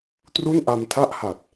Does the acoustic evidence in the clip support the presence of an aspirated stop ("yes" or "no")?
yes